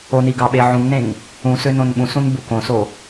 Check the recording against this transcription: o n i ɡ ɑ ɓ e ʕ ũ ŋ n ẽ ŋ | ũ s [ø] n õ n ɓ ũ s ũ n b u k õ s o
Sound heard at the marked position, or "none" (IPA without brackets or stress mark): ø